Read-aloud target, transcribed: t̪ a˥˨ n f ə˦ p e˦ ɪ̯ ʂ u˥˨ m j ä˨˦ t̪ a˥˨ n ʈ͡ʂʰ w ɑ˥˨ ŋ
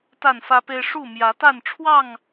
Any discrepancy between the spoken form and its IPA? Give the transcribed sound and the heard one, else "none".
ə˦ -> ä˦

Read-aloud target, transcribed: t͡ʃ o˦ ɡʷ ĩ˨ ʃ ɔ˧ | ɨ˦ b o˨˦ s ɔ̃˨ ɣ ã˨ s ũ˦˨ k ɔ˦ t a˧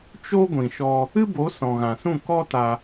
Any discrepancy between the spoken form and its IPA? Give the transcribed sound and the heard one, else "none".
none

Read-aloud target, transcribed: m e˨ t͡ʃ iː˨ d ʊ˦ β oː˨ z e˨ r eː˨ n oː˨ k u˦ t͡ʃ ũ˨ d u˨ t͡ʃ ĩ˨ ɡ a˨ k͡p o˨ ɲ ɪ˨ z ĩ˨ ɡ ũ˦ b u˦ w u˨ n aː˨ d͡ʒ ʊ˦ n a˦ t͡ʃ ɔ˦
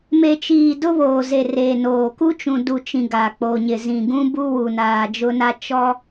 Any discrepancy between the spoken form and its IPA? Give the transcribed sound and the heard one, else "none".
none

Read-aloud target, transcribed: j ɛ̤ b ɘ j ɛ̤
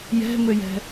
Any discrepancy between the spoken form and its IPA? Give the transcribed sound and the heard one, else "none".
b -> m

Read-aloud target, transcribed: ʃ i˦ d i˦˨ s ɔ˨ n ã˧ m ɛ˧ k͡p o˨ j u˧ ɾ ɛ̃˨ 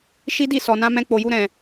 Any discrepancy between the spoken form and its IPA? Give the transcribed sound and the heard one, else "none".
ɛ˧ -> ɛ̃˧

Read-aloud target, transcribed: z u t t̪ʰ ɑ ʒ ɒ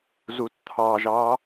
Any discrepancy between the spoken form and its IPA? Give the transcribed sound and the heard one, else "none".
ɒ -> ɑ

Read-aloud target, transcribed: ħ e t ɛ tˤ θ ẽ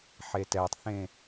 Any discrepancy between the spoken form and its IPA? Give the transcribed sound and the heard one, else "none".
none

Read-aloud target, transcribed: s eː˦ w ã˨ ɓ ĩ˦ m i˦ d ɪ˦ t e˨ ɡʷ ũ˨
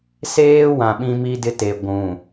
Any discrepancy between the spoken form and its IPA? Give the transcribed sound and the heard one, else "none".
none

